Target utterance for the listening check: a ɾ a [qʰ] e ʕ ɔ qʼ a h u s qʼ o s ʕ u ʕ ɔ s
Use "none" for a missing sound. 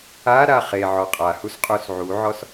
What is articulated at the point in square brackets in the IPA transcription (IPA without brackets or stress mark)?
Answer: χ